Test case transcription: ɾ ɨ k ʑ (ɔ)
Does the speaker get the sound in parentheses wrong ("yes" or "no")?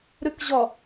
no